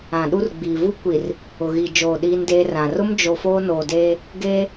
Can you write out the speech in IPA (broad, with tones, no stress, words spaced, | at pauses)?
ã˨ɗu˦rɡ͡biː˨ vu˦kʷi˨r | ʊ˨ɣi˨d͡ʒoː˨ ɗiː˦ndeː˦rã˨ rʊ˦md͡ʒo˨ foː˦noː˨deː˦ | ɡeː˦